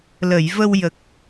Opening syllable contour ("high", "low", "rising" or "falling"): low